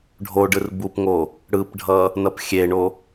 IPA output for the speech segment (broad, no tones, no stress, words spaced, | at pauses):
ɖʱoɖɯr bupŋo | ɽɯpɖʱʌ | nʌpxʲeɳo